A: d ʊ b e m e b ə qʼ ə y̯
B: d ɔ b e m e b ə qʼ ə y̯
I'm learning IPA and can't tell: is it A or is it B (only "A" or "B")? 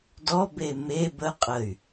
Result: B